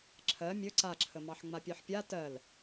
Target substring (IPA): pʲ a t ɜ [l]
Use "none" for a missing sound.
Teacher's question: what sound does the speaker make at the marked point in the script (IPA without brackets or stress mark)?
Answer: l